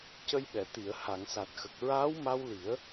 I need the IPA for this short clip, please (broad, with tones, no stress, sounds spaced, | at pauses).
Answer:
c ə˧ j ɓ ɛ˨˩˨ t̪ i˨˩˨ ə̯ h a˨˩˨ ŋ s a˨˩ t̚ x ə˨˩ k̚ ɹ aː˧˥ w m a˧ w l i˨˩˦ ə̯